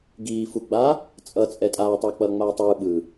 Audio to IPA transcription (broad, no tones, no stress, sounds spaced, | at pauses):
ɡ iː f u ɡ͡b a | t͡sʼ ʌ t͡sʼ ɛ tʼ aː tˤ ʌː k͡p ʌː ŋ͡m aː tˤ ɯː ɓ ɯ